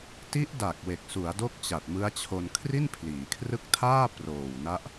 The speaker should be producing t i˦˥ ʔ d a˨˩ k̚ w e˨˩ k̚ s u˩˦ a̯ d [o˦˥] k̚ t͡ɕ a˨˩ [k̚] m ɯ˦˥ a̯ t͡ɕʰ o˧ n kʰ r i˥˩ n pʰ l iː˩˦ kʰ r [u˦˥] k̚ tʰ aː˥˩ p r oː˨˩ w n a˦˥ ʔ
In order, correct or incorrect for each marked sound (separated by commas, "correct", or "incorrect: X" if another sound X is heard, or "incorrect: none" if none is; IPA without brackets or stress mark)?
correct, incorrect: t̚, incorrect: ɯ˦˥